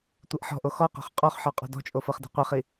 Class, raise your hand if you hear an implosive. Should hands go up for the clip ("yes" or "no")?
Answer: no